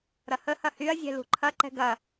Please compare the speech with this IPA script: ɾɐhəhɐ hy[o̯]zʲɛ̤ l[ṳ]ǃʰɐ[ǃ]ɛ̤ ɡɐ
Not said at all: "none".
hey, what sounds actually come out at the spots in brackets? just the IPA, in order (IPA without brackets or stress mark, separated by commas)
ɐ̯, ṳ, ǃ